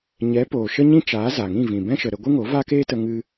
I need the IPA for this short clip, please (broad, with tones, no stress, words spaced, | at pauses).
ɲɛ˨˦ poː˨ʃə˦ɲĩ˦t͡ʃaː˨˦ za˨ŋĩ˦˨vĩ˨ bɛ̃˦ʃə˨ɾə˧ɡʷɨ˦ ŋo˨˦va˦keː˦tə˧ ŋɨ˧